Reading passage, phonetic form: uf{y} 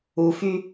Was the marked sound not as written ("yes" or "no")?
no